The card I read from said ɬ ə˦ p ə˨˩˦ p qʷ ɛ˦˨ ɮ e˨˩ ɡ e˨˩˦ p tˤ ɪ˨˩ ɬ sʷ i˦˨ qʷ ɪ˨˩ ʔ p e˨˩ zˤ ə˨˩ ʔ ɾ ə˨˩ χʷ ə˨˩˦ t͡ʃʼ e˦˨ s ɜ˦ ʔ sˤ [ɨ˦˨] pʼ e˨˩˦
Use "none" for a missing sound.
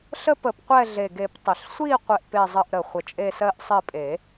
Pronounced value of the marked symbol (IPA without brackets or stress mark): ɪ˦˨